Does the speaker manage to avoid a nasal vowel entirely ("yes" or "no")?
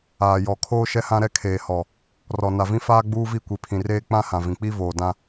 no